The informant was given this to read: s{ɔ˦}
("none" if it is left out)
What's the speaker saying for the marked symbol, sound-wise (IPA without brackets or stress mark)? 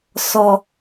ɔ˨